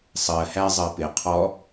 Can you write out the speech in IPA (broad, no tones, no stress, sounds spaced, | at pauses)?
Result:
sˤ ɜ h æ zˤ ɜ p ɪ qʰ ɔ